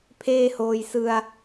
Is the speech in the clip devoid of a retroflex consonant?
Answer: yes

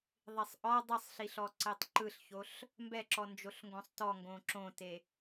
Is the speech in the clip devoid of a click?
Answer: no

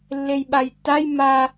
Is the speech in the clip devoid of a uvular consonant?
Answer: yes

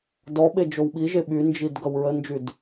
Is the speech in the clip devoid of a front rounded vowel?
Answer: no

